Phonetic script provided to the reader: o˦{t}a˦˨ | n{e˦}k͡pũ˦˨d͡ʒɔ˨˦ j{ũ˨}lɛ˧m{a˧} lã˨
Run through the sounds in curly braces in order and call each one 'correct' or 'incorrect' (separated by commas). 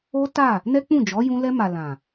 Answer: correct, incorrect, incorrect, incorrect